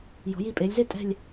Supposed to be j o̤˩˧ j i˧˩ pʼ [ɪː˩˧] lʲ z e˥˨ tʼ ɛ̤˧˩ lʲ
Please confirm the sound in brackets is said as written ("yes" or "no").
yes